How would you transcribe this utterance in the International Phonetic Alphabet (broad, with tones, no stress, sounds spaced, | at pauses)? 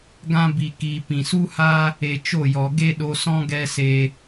ɡ ã˦ b i˨ k iː˨ p ĩ˨ s u˦ h aː˦ | e˧ t͡ʃ o˦˨ j ɔ˨ ɡ e˦ ɗ o˧ s ɔ̃˦ ɡ ɛ˦ s eː˧